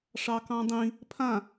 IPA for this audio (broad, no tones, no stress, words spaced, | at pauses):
ʂɑkɑ̃dˤĩ | pʰã